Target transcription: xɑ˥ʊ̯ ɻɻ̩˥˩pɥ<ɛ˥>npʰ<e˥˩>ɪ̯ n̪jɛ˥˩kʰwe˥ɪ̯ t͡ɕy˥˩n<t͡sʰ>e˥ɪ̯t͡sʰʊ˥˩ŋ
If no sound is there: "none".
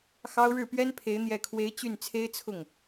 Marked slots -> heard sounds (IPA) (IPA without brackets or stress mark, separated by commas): ɛ˥, e˧˥, t͡sʰ